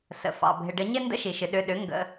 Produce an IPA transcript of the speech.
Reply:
sə̰˩fɑ̰˩ bʱɪ˩ɖə˧˩˧ɲɪ˦˨ ndə̰˦˨ʃi˩ʃɨ˩ ɗʏ˩˧˩ɗʏ˩˥ ŋɡə̰˩˧˩

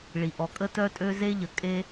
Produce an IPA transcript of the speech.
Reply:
ɭi˩ʔɔ˩kʼə˥ tœ˥tʼø˥ ze˥ʎə˩kʼe˥

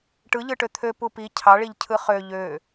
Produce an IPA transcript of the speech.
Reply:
ʈɯ ʎɯʈøt̪ʰø pupi cʰɑɭiʎcʰɯ χø ʎø

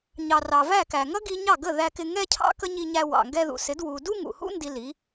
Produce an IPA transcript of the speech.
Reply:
ɲɑ˨rɑ˨væ˦˨kæ˨ ŋʌ˦ɡi˧ɲɑ˦˨ ɡə˦˨ ðæ˧kɪ˧ ŋɛ˦cʰɑ̰˦ kə˦ɲi˧ɲæ˧ wɑ̰˨ŋɡɛ˧ðṵ˨sɪ˨˦d wu˧ du˦ŋṵ˨hṵ˦ ndi˧li˨˦

